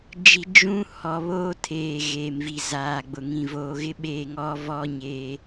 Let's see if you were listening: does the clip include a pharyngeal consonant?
no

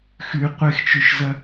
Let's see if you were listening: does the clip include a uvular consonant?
yes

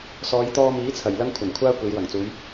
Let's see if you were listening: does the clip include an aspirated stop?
yes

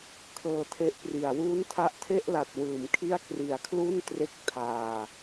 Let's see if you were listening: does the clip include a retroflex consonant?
no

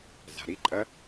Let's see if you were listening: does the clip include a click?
yes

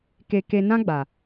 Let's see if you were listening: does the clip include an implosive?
no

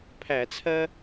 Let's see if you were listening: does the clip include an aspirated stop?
yes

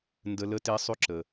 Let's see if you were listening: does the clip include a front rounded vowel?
yes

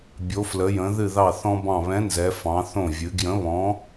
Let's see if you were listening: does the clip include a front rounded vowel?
no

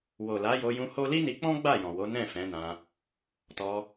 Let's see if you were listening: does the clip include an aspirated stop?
no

